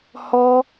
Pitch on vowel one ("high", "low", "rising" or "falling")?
high